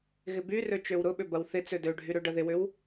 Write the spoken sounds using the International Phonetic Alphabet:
ɣɪbyrø t͡ʃøwɾʊɓʏ bɐwθɪt͡sø døɖʱy ɾøɖɐðɪwʏw

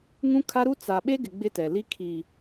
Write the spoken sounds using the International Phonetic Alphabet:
ŋũ˦kʰa˦ɾu˦ t͡sa˨ɓe˦ɡɪ˨ ɡ͡bɪ˦tɛ˨li˦ kʰi˨

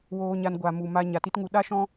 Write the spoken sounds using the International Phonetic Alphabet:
woː˧ɲa˧n ɡʷa˨mu˨ma˧ ɲa˨ti˦tŋu˧ ɗa˦ʃɔ̃˦

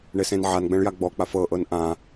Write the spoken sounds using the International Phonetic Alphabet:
ɳesẽnʕanɡ͡bɛ̃ɭ jaɡ͡bɔk͡paf ɤʔɤn ʔã

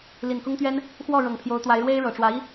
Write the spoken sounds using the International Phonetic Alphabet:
li˨˩nkʊ˥ŋt̪ɥɛ˥n | xwɔ˥˩ ɻɤ˨˩ŋpʰjo˧˥ʊ̯t̪wa˧˥ɪ̯ ɻwe˥ɪ̯ɻɤ˨˩ʈ͡ʂwä˧˥i˥

